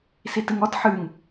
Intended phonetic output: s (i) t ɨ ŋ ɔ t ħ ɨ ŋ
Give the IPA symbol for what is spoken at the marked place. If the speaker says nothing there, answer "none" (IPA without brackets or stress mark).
i